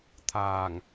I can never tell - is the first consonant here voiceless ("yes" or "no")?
yes